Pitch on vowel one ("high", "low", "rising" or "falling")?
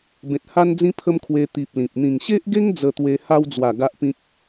low